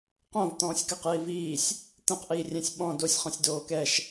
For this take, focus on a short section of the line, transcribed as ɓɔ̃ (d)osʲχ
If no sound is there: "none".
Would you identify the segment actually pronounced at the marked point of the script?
d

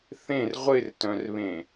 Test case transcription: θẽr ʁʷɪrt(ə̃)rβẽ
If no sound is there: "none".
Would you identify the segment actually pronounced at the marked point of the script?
œ̃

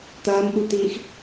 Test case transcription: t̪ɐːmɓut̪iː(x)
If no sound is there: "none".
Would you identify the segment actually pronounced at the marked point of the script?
x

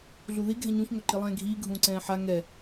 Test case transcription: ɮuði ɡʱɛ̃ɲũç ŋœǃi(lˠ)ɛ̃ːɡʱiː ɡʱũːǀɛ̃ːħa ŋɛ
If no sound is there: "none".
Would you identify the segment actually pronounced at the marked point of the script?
lˠ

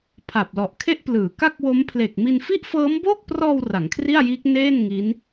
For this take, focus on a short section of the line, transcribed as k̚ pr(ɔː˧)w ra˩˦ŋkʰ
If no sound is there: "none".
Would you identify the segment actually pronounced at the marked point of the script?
ɔː˧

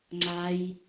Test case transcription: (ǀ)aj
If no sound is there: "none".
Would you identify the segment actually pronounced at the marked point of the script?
ŋ͡ǀ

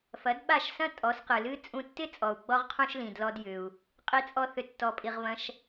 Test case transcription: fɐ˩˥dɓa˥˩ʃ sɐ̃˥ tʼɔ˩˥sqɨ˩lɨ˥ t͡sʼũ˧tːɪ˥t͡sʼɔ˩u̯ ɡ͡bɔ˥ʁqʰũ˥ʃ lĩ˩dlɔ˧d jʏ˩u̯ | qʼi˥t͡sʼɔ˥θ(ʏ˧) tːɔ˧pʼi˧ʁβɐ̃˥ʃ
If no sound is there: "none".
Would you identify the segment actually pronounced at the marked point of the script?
ʏ˧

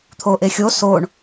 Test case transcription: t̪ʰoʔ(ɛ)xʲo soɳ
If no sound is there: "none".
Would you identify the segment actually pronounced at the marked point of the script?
e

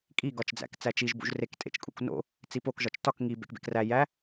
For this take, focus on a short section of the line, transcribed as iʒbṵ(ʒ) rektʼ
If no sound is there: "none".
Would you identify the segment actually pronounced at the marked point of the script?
ʒ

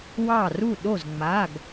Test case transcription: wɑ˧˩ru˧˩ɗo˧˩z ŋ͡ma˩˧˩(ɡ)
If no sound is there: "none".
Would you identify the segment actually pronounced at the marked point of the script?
ɡ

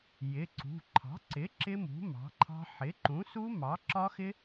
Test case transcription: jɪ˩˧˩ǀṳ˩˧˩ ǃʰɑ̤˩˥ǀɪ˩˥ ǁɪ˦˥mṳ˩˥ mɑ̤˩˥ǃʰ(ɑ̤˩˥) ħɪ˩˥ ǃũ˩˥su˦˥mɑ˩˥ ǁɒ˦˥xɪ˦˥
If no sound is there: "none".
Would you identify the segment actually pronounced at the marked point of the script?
ɑ̤˦˥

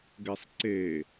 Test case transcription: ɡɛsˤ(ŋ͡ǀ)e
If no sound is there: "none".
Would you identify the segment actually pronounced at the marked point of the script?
ǀ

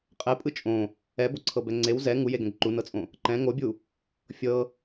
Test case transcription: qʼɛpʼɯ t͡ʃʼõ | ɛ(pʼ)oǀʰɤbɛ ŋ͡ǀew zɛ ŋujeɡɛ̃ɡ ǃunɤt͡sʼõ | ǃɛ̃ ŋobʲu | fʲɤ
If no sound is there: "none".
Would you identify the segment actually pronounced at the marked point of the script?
b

